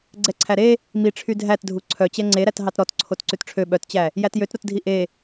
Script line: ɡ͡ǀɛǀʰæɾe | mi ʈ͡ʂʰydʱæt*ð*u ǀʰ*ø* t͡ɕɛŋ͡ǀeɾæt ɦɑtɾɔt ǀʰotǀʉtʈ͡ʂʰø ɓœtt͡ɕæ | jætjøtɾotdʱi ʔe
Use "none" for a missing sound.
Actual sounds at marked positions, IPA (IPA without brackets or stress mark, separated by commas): dʱ, œ